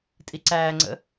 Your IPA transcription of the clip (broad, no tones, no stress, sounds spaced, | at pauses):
tʼ i ǀ æː ŋ͡ǀ ə̰